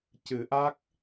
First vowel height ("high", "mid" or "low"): high